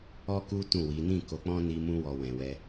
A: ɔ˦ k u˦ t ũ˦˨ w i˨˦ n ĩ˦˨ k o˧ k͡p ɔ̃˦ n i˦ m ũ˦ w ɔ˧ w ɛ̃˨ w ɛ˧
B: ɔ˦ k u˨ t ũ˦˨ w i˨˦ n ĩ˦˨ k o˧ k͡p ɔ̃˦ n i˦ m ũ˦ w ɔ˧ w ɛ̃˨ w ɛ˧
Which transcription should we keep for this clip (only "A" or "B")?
A